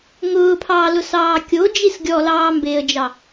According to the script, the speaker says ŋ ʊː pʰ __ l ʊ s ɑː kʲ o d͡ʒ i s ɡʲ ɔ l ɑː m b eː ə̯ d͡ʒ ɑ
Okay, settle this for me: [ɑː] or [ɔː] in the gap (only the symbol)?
ɑː